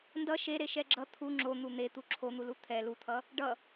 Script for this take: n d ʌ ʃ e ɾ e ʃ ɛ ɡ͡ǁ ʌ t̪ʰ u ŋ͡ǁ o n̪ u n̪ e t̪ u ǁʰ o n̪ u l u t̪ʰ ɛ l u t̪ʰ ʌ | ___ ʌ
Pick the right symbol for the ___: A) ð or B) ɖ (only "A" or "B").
B